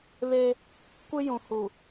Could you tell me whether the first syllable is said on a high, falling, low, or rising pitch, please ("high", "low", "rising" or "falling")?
high